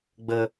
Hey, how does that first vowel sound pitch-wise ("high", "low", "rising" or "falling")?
low